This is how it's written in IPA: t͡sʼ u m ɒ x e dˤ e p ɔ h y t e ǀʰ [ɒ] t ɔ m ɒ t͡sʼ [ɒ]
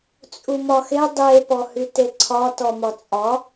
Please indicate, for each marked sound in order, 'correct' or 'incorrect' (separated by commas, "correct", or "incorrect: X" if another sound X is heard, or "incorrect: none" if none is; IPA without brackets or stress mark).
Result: correct, correct